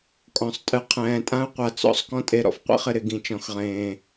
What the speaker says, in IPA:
kʼɔ̃˨˦sˤtʼɨ˨˦ qʰɛ̃ː˨tʼã˦u̯qʷa˨t͡sɔ̰˦sˤ kɔ̃˦tʼe˨ ɾɔ̰˨fqʷḭ˦χɪ˨ɾɪ˨ ɡĩ˨t͡ʃɔ̃˨xʁẽː˨

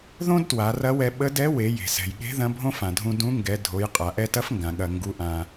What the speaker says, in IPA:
ðõ˥d twa˩˧rɐ˧˥wɛ˧ ɓə˧˥dɛ˧˥ we˩˧je̤˩sɛ̤˩jɠe̤˧˥ ðɐ̃˧˥bʱõ˥fã˩dʱũ˧ dũ˧˥ŋɡɛ˩˧ dʱo˩˧jqʼa˩ ʔɛ˧tɐ˧˥fŋɡã˩ ɠɐ˩ ŋɡu˩˧ʔã˩

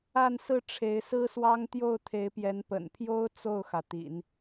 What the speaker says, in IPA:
a˥˧nsɹ̩˥˩ ʈ͡ʂʰe˧˥ɪ̯sɹ̩˥swɑ˥ŋ t̪jo˥˩ʊ̯t̪ʰe˧˥ɪ̯pjɛ˧˥n pə̰˨˩npʰjo˥ʊ̯ t͡so˥˩ʊ̯xä˩t̪ḭ˨˩˦n

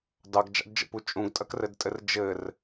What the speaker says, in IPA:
dɑɡd͡ʒɑ̰dd͡ʒə̰pu t͡ʃʼũɡtʼɐkrɘdtʼɘr d͡ʒɘr

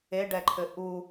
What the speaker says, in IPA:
eɖɛǃʰɘ ʔu

